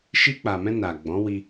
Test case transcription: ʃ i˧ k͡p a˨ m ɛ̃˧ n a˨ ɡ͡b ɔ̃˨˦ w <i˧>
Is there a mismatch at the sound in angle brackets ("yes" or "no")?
no